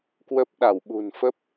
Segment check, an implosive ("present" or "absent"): present